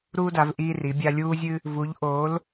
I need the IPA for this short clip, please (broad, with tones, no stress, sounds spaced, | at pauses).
ɾ uː˧ d a˩˧ v ʔ iː˧ r i˩˧ bʲ a˧ lʲ uː˧ zʲ ɨ˧ | v u˩˧ ʎ ʔ oː˩˧ l